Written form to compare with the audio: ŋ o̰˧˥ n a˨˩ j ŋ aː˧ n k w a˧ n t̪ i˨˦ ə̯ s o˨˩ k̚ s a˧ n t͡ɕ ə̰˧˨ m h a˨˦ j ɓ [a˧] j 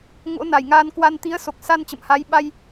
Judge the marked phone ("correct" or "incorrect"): correct